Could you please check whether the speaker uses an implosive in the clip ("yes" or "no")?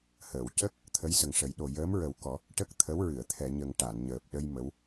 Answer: yes